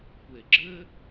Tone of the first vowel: low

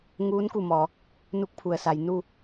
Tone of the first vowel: rising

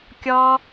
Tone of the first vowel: high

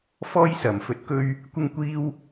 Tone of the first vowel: high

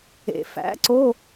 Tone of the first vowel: low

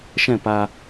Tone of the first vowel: falling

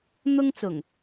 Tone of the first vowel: high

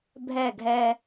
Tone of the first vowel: falling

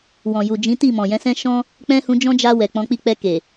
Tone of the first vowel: low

